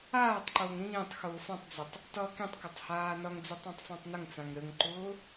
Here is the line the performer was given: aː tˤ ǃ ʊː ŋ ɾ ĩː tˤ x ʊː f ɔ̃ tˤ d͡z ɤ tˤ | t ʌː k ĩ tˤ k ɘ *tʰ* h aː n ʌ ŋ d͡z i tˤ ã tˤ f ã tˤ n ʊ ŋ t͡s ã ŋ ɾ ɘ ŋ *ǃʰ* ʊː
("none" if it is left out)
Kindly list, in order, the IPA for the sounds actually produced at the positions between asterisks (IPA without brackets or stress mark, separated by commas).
tˤ, ǃ